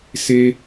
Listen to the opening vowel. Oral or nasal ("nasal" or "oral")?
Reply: oral